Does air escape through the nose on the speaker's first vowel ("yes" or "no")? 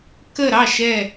no